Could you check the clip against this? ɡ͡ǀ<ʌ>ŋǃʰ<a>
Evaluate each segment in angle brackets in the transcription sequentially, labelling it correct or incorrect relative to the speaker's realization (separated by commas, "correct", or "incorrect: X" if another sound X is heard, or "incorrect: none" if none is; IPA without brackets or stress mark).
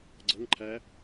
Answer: correct, incorrect: æ